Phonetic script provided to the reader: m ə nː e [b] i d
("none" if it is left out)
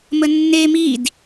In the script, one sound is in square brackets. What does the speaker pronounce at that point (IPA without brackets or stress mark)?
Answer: m